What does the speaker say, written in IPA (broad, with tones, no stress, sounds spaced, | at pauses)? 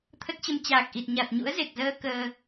t̪ʰ ə˦˥ t̚ t͡ɕ ə˧ m t͡ɕ aː˨˩ k̚ ʔ i˨˩ t̚ ɲ a˨˩ t̚ ɲ ṵ˧˥ ə̯ z e˨˩ k̚ z əː˧ k əː˧